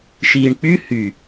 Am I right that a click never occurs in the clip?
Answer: yes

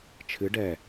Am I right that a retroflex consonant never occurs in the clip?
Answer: no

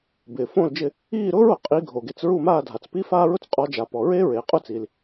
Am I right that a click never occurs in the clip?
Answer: yes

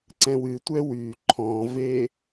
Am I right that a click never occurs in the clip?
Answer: no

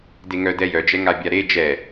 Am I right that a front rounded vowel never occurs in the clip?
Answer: no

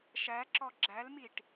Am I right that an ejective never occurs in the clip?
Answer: yes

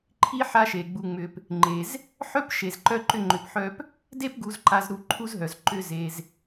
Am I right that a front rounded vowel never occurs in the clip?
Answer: no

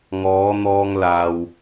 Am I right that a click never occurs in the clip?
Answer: yes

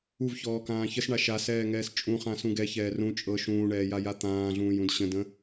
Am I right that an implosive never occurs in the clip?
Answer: yes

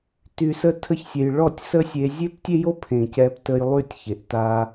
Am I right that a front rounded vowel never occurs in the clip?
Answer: no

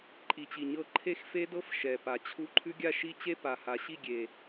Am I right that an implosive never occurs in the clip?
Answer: yes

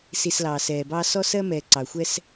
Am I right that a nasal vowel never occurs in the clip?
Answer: yes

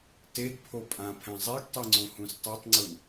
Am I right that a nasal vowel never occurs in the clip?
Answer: no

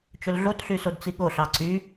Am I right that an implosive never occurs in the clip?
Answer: no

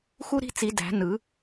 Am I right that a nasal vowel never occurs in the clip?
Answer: yes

